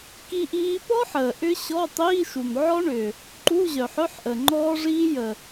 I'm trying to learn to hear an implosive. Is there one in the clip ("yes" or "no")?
no